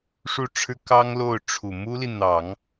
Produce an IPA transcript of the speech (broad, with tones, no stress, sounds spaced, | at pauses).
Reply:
ʂ u˥˩ ʈ͡ʂʰ ɻ̩˥ k ɑ˥ ŋ l o˥˩ ʊ̯ ʈ͡ʂʰ u˨˩ m u˥ l i˨ n̪ ɑ˨˩˦ ŋ